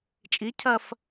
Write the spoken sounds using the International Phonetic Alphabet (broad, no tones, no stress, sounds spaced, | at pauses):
t͡ʃʼ i cʰ ɐ f